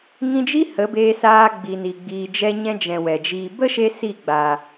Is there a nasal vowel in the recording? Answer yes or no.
yes